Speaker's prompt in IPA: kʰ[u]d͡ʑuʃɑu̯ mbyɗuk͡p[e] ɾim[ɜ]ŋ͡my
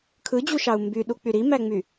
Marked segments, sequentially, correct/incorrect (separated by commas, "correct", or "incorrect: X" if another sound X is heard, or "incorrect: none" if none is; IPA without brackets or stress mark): incorrect: ɯ, incorrect: y, incorrect: æ